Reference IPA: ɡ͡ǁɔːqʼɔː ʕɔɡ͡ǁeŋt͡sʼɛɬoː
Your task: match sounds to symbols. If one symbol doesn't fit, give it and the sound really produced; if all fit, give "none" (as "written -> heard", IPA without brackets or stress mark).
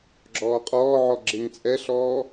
oː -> ɔː